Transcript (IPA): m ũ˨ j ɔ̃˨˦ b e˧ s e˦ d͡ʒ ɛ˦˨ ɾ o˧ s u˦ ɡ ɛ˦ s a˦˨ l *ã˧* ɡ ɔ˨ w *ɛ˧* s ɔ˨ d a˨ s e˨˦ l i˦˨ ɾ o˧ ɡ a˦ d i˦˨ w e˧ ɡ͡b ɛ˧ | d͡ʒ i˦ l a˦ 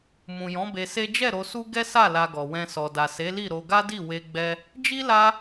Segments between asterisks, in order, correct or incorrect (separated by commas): incorrect, incorrect